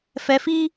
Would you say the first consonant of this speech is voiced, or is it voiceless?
voiceless